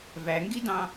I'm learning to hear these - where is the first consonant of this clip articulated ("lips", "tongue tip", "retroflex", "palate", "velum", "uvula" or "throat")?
lips